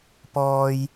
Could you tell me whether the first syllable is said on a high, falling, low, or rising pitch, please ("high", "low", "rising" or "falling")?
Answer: high